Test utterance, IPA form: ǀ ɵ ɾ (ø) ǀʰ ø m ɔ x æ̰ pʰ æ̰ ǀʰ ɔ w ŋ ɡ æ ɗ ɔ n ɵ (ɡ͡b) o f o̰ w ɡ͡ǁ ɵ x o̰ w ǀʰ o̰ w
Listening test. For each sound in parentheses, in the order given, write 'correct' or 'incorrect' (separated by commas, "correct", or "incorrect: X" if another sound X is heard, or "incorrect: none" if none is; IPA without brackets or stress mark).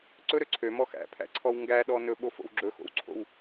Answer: correct, incorrect: ɓ